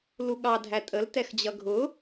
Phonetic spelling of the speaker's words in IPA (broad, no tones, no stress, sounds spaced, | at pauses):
l u ɠ ɑ dʱ æ tʼ ə l t ɛ x d͡ʑ ʌ ɡʱ ʊ